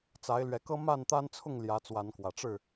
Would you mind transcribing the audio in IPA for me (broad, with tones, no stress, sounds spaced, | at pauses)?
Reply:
t͡s a˨˦ ɪ̯ l ɥ ɛ˨˦ k ɤ˦ m a˥˨ n t̪ a˦ n t͡sʰ ʊ˥˨ ŋ l j ä˨˦ t͡s w a˨˦ n k w ä˨˩ ʈ͡ʂ ɻ̩˥˨